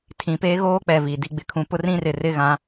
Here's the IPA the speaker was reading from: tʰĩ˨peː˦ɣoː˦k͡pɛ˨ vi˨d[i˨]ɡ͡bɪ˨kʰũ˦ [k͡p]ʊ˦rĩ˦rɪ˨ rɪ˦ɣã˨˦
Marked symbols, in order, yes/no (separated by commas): no, no